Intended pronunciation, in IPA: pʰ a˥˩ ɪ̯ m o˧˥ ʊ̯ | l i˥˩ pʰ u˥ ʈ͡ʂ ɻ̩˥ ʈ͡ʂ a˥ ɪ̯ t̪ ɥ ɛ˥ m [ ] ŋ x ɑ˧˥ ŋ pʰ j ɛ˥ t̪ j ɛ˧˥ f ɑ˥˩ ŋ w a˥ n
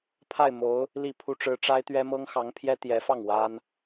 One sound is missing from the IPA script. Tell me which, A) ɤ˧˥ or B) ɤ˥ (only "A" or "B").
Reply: B